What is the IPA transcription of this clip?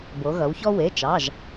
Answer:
b o˩˧ ɣ ʌ˩˧ w ç ɔ˦ w e˩˧˩ t͡ʃ ɑ˩˧˩ ʒ

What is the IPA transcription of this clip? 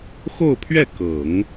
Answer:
x o˥˧ ʊ̯ pʰ ɥ ɛ˥˩ k ɤ˨˩˦ ŋ

